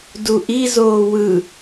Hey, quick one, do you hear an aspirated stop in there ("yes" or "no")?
no